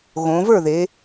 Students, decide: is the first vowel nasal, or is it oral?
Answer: nasal